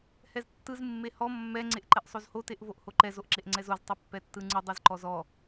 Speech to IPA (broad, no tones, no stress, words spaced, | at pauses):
hɛztːɯz mːehɔ mːɛ ŋ͡ǀeʔǃɛʔsˤozho teʔvoʔhoǃɛz oʔǁeʔŋ͡ǀɛzoz tˤepːɛtːɯŋ͡ǀɯ dˤɯzǃɔzɔ